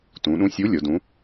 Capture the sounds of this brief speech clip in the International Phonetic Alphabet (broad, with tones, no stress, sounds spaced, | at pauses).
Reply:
t ũ˩˧ ɗ ũ˨˥ sʲ u˨˥ lʲ o˩˧ d ũ˨˥